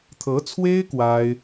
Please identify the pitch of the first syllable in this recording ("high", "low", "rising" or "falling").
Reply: rising